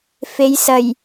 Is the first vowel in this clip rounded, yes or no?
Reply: no